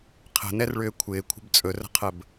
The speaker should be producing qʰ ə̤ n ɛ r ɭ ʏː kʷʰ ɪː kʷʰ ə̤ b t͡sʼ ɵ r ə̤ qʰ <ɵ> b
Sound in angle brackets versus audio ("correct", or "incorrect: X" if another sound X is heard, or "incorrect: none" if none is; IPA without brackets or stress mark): incorrect: ə